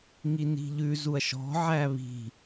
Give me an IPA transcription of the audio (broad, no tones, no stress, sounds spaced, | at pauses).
ŋ i n i̤ ʎ ʉ z u ɐ̯ ʃ ɔ̤ ʕ æ β i̤